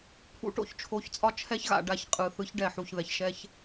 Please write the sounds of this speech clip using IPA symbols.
pʰ ṵ˦ ʈ o̰˨˦ ç t͡ʃʰ o˨˦ ç t͡sʼ ɒ˦ t͡ʃʰ ɛ˦ ç ɣ a̰˨ ɖ a˦˨ ç qʼ ɯ˨ θ ɯ˨˦ ç ɖ ɛ˨ ħ u˨ ç ð ɛ˨ ç ʃ ɛ˦ ç

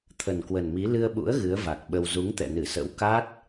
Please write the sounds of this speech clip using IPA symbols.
t̪ʰ ə˨˩ n k w ə˨˩ n m i˨˦ l ɨ˧ ə̯ ɓ ṵ˧˥ ə̯ ɣ ɨ˨˦ ə̯ v a˨˩ k̚ ɓ ə˧ w z u˨˦ ŋ t̪ ɛ̰˧˨ n ɨ˧˩ s ə̰˧˥ w k a˦˥ t̚

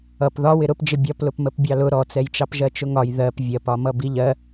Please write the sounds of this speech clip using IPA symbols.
ʌ p ð ɒ w ɪ ɾ ʊ p d͡ʒ ɪ bʲ ɒ p l ʊ p m ə p bʲ ɑ l ʊ ɾ ɔ t͡s ɛ j t͡ʃ ɑ p ʒ ɜ t͡ʃ ʊ ŋ ɒ j ð ɜ p vʲ ɜ p ɒ m ʌ b i ʎ ɜ

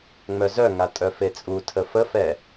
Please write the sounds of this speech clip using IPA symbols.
ŋ͡m œ z œ ŋ a tʼ œ f e t͡sʼ u tʰ ə f ə f ɛ

